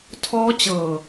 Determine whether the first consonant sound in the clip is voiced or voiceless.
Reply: voiceless